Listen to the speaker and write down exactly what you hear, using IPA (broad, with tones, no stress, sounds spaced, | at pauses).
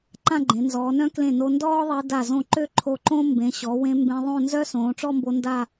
ǃ ã˥˧ ɡ͡ǃ ẽ˩˧ n z ɔː˩˧ n œ̃˥ k l ẽ˧˩ n o˧ n d ɔː˥ ðˤ e˧ d a˧˩ z õ˧˩ ǃ ø˥ ǃʰ o˧˩ ǃ õ˥ m b ẽ˩˧ ɕ ɔ˩˧ w ẽ˧ m b ẽ˧ ðˤ õ˥˧ n z œ˥ s õː˩˧ ʈ͡ʂ ɔ˥˧ m b o˧ n d a˥˧